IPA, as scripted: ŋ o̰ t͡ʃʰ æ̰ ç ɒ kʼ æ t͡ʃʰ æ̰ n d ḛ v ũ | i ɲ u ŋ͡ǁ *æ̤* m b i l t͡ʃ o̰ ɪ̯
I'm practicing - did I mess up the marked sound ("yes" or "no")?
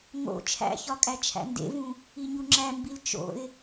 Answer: yes